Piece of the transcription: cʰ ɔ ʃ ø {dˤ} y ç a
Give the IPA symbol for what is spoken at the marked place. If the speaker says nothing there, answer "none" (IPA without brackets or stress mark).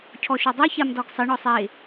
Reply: dˤ